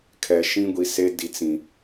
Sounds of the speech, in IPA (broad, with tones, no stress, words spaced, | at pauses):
kʰɛ˨ ʃĩ˦ɡʷi˨se˦ di˨t͡sĩ˨